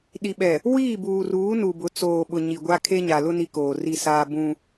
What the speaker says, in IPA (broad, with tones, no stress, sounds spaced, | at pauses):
ɗ i˨ ɓ ɛ˨ | w iː˦˨ b uː˨ r uː˨˦ n u˨ b ʊ˨˦ t͡s oː˨ ɓ ʊ˨ ɲ i˨ ɡʷ a˦ kʰ e˦ ɲ a˨ l ʊ˦ n i˦ k oː˨ r i˦˨ s aː˦ b ũ˦